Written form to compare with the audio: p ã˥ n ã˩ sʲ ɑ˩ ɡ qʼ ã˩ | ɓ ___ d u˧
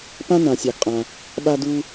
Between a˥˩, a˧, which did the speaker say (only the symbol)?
a˧